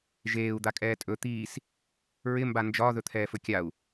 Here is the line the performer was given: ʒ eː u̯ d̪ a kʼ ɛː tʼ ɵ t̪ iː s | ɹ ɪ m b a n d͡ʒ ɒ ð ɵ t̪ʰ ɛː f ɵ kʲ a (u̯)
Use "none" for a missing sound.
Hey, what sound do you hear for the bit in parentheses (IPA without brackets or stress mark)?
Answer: u̯